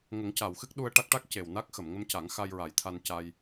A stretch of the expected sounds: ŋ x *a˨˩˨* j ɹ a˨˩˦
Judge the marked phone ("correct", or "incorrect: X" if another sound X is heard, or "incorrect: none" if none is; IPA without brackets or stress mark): incorrect: a˧